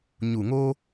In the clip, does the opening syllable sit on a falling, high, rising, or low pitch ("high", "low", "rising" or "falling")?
low